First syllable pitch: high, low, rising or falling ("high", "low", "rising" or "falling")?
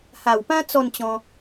low